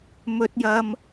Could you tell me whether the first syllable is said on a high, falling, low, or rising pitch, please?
low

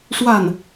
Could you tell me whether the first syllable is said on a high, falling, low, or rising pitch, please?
falling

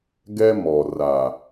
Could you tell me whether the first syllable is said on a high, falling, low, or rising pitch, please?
high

